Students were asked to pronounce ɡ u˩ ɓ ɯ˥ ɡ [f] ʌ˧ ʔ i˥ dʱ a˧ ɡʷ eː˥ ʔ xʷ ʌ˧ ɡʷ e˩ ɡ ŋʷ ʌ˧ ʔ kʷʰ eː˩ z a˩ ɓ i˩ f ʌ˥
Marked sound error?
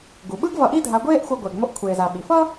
yes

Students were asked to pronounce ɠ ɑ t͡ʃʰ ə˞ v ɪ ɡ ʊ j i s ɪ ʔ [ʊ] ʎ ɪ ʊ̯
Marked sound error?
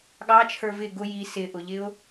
no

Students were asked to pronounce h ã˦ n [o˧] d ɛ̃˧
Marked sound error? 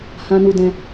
yes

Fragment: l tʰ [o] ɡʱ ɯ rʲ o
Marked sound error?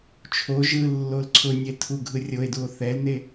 yes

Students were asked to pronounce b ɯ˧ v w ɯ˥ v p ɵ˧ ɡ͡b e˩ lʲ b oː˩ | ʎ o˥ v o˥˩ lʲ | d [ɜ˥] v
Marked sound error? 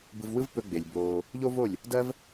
no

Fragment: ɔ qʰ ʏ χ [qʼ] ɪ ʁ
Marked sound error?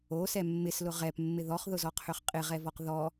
no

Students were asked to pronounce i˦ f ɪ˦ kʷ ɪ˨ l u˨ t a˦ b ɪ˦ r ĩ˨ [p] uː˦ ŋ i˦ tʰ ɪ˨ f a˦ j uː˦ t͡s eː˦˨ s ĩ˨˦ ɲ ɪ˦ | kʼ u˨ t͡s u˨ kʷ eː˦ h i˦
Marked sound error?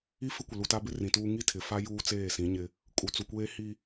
yes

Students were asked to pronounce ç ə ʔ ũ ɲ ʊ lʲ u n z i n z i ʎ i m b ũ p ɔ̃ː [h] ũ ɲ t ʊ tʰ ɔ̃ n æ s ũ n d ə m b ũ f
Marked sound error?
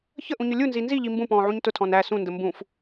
yes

